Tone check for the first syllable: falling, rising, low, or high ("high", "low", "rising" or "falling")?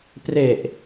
low